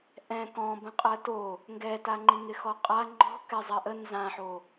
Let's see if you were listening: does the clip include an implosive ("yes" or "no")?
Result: no